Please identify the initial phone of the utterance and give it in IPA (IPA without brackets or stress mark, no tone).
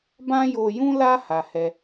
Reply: b